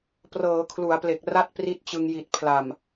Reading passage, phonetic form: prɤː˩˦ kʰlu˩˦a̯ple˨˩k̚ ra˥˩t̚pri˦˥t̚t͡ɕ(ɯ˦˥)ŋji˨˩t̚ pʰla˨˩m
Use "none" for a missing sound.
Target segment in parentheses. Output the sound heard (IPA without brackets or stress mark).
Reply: ɯ˧